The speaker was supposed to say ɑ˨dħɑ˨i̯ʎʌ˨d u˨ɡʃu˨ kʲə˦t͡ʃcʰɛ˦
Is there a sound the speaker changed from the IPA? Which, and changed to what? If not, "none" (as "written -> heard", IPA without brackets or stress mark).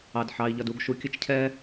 none